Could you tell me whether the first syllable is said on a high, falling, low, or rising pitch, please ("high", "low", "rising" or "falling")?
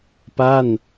falling